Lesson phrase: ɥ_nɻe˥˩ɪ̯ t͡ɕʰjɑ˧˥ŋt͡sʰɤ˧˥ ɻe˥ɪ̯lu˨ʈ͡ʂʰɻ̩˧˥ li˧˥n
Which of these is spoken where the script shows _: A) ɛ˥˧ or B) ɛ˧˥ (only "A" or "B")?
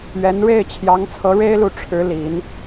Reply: B